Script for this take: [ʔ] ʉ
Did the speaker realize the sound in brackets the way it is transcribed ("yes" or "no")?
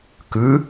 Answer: no